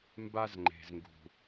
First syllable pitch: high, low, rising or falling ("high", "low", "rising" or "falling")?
high